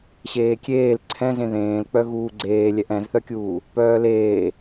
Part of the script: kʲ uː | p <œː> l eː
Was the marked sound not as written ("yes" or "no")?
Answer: no